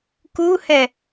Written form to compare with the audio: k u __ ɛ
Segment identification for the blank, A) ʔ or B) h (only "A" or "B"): B